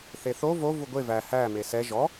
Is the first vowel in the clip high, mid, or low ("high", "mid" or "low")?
mid